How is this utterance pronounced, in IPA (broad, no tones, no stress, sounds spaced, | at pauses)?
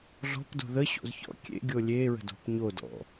ɮ ɔ̤ p d o̤ ð ə ɕ o̰ z ç ɔ̰ kʲ ḛ ɡʲ o lʲ e ɹ ə̤ d o̤ p ɲ o d ɔ̰